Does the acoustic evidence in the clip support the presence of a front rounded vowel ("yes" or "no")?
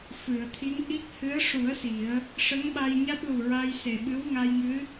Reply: no